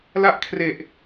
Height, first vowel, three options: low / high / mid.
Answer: low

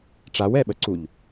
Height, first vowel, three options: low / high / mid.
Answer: low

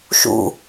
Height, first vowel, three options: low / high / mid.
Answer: high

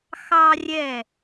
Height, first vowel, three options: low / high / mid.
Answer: low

